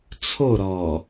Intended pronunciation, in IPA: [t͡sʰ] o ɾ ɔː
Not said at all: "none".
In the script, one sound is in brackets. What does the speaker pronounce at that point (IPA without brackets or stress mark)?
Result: t͡sʰ